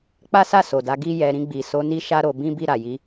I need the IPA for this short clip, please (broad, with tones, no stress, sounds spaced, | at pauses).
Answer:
k͡p a˦ s a˦˨ s o˨ d a˨˦ ɡ i˦ j ɛ˧ ɾ ĩ˧ ɡ͡b i˨ s o˨˦ n i˦ ʃ a˦ ɾ o˧ b ĩ˦ b i˦˨ ɾ a˨ j i˧